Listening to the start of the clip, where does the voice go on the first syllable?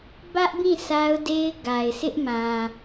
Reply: high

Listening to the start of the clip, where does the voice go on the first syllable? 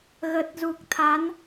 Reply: low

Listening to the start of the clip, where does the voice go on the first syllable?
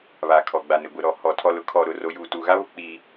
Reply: low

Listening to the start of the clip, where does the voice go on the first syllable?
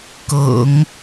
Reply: low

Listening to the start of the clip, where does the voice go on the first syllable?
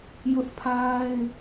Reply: high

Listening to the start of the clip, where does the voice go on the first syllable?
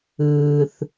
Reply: low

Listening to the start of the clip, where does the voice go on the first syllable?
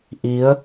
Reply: rising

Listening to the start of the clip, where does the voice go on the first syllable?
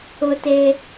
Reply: high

